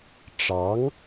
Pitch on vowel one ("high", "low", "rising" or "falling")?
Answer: rising